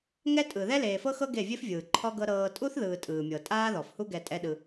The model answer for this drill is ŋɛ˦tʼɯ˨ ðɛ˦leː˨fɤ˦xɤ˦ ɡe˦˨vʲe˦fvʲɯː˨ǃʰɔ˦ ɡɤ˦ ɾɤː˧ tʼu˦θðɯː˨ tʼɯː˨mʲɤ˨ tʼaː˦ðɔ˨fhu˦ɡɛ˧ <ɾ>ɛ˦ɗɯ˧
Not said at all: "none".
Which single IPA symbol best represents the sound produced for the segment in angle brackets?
tʼ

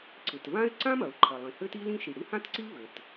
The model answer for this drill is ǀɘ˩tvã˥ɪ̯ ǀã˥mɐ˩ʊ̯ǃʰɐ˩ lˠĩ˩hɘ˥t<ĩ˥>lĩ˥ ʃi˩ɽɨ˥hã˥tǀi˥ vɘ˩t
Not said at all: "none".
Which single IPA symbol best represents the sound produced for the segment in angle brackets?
i˥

